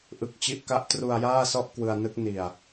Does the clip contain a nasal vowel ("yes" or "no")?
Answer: no